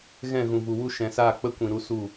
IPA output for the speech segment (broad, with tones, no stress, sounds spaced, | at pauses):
ɣ ɛ̃˦˨ ɣ ũ˨ v u˨ w u˧ ʃ ɛ̃˨ s aː˦˨ k͡p ə˦ kʷ ĩ˨ ɾ u˦ s u˦˨